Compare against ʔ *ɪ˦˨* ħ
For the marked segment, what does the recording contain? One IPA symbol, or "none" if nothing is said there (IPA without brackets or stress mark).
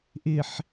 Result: ɪ˨